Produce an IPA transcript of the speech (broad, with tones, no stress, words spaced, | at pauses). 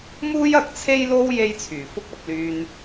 muː˥jɐ˨k̚t͡sʰe˥jlo˥w je˥jt͡sʰyː˨˩fʊ˥k̚ ɐ˧p̚lyː˧n